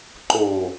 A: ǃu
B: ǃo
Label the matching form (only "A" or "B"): B